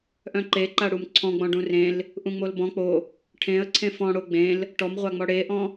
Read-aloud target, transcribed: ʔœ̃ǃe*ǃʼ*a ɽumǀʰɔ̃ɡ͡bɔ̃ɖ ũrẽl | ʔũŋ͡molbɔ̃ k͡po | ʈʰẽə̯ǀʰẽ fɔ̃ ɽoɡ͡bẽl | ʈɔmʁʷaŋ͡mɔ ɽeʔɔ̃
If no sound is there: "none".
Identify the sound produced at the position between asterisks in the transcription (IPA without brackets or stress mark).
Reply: ǃ